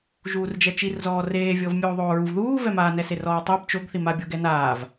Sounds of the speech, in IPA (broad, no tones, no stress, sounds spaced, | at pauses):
ʒ uː r d͡ʒ ɛ t͡ʃ i r z ɔː r eː vʲ ɤ v mʲ oː ðˤ oː ɹ u v ð uː v ɛ m aː n ɛ s e r ɔː tˤ i b t͡ʃ o ɡ θ i m a bʲ ɤ ɡ ɛ n aː v